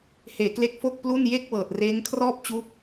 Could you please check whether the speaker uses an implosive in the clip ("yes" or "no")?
no